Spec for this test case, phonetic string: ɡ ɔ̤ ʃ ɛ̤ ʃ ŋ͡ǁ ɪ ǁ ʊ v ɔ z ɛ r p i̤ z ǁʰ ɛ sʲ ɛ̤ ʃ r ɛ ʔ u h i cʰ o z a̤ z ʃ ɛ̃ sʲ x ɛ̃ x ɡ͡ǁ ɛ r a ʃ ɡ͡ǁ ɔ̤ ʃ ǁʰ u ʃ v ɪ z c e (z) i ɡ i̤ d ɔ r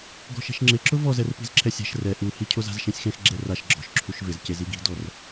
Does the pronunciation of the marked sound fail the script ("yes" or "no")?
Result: no